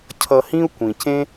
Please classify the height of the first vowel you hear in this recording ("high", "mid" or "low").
mid